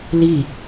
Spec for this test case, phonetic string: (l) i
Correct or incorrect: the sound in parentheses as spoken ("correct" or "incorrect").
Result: correct